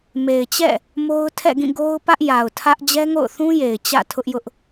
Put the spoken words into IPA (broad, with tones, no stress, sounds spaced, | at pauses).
m e˨ ɪ̯ t͡ɕ ɛ̰˦˨ | m o˦ ʊ̯ tʰ ɛ̰˦˨ ɡ ĩ˦˨ ɡ o˦ ʊ̯ p ä˦ ʔ j a˨ ʊ̯ tʰ ä˦ ʔ d͡ʑ ɛ˦ ŋ o̰˦˨ ʊ̯ θ ũ˦ j e˨ ɪ̯ t͡ɕ ä̰˦˨ tʰ ʊ˦ ʔ j ʊ˦ ʔ